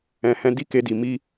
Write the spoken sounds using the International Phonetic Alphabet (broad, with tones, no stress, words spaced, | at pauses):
ɛ̃˨hɛ̃˧ di˦ke˧di˨ mi˧